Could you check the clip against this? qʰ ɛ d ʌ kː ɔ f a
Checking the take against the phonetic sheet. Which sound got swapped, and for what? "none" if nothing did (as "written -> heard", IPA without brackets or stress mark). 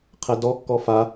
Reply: ʌ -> ɔ